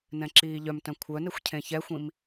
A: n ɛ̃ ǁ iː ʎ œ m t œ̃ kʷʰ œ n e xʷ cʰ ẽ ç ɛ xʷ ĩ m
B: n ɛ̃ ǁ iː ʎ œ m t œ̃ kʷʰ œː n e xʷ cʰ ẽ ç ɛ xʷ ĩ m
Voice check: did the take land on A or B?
A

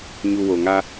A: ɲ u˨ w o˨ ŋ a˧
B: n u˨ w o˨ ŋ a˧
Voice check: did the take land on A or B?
A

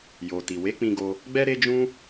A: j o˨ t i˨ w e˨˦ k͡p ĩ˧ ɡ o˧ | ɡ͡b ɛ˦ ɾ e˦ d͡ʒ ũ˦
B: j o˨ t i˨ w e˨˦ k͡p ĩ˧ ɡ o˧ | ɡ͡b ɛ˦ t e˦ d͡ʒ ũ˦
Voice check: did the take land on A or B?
A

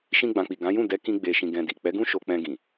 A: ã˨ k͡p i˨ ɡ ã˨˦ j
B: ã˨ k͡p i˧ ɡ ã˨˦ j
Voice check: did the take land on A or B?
A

